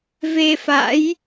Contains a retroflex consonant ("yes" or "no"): no